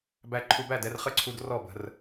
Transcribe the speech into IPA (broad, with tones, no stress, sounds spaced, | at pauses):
b æ˧ ǃʰ u˧ b æ˥˩ d ɛ˧ r χ ə˥˩ ǀʰ u˧ d r ɔ˥˩ b ə̤˧ r